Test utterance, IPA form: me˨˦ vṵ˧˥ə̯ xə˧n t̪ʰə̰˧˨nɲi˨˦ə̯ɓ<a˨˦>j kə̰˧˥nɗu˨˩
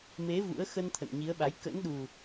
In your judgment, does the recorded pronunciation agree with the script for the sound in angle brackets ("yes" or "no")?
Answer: yes